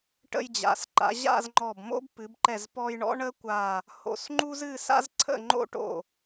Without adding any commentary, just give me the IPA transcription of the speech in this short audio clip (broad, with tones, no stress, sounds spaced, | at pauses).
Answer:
ʈ ə̰˧ j d͡ʑ a̰˩˧ s ǃ a̰˩˧ ʑ a̰˥˧ z ŋ͡ǃ ɔ˧˩ b m o̰˥ b p ɨ˩˧ b ǃ ɛ˧˩ z p ɔ˧ j ɳ ɔ̰˥ ɳ ə˥ kʷ a˧˩ | h o̰˧˩ s ŋ͡ǃ u˥ z ɨ˥˧ s a̰˥ z ǀʰ ə̰˥˧ ŋ͡ǃ o̰˥ ʈ o̰˧˩